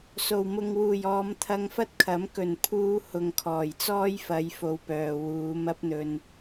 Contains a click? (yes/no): no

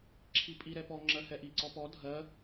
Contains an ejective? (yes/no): yes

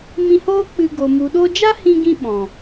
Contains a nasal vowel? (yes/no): yes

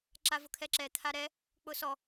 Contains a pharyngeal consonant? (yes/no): no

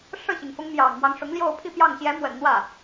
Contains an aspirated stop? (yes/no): yes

